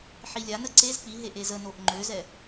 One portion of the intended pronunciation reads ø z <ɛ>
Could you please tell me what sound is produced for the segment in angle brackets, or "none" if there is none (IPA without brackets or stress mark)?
ɛ